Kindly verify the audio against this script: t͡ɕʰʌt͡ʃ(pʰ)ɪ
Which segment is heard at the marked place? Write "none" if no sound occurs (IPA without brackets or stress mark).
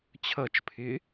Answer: pʰ